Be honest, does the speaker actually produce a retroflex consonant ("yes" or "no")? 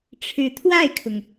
yes